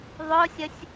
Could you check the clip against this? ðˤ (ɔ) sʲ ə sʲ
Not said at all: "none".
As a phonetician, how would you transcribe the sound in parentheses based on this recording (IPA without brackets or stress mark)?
ʊ